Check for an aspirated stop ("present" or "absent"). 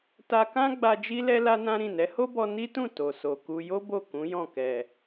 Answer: absent